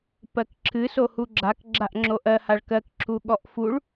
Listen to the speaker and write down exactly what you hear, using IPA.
p ɜ k ǁʰ ɨ s o h u ɡ͡ǁ a k ɡ͡ǁ a ʔ ŋ͡ǁ o ʔ ɜ h a ɭ k ɜ k ǁʰ u ɠ ɔ ʔ f u ɭ

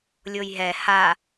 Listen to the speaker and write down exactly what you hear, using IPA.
lʲ o j ɦ ɛ h a

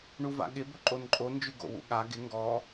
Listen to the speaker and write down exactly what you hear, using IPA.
ɳ u v a̰ ɠ ɪ b ɵ ǃʼ o n ǃʼ o n d͡ʒ ʉ ɡ o̰ w ṵ ɠ a ɡ ɪ ŋ ɡ ɔ

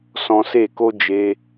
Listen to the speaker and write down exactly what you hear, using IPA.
s ɔ̃˧ s e˦˨ k o˦ d͡ʒ e˧

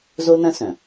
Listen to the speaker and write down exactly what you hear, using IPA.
z o˥ n ɐ̃˥ s œ̃˩

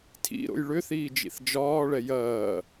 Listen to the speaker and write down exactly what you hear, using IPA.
tʰ ḭ ɾ o̰ j ɭ ʏ θ iː d͡ʒ ḭ θ d͡ʒ ɒː ɭ ɛ j ɐː

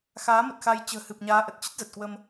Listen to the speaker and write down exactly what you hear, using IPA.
x aː˨˦ m ə˨˩ t̚ x a˧ j t͡ɕ ə̤ː˨˩ h ɨ˨˩ p̚ ɲ aː˨˦ ʔ ə˨˩ t̚ t͡ɕ ə˦˥ t̚ z ə˨˩ t̚ k w ə˧ m

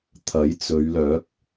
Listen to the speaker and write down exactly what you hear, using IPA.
t̪ʰ ɐ˨˥ j t͡s ɵ˨˧ ɥ l œː˨˥ k̚

